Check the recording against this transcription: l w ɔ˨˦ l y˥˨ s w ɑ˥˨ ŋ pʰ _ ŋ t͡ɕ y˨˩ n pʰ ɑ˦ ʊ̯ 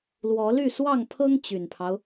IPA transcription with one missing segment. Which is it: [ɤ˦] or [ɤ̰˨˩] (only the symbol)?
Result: ɤ˦